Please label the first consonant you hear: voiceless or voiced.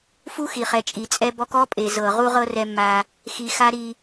voiceless